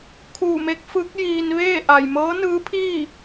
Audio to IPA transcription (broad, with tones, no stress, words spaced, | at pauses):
kʰuː˧˩me˧˥k̚fɯː˧˥k̚ jiː˧n ʋeː˥˨ ʔa˩jmɤː˧˥nɯː˧˥pʰiː˥˨